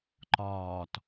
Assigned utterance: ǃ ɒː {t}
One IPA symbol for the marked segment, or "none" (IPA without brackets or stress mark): t